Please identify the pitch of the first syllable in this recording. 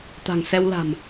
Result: low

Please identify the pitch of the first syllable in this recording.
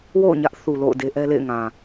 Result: falling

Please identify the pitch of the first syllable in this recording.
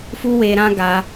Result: high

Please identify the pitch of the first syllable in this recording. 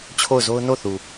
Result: falling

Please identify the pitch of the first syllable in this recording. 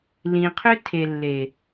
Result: low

